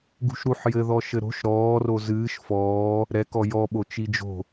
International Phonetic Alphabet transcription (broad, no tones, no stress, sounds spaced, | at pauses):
ɡ ṳ ʃ ɾ u ħ j ɘ ð ɔ ʃ ɘ ɾ o̤ ʃ ɾ ɔː r o z ɨː ʃ f ɔː | ɾ ɛ k ɔ j ɔ ɓ o t͡ʃ i d͡ʒ o̤